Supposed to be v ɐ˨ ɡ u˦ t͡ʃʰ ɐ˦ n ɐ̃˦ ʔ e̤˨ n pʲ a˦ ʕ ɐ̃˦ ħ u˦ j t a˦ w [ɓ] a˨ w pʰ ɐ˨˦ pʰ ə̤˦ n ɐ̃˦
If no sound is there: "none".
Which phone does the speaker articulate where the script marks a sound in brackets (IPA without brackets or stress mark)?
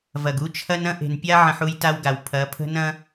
ɡ